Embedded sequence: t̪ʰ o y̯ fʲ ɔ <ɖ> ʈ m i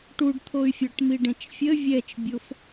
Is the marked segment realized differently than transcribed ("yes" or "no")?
yes